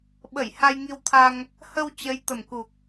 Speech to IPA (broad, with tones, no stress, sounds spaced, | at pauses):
ɓ ə˧˩ j h a˧ j ŋ i˧ w t̪ʰ a˧ ŋ | h ə˧ w t͡ɕ ə˨˦ j t̪ ə˨˩ m k u˨˩ k̚